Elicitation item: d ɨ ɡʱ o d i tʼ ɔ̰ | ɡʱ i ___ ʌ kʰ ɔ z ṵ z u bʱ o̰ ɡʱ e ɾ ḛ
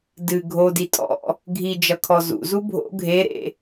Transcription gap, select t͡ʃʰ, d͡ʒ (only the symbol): d͡ʒ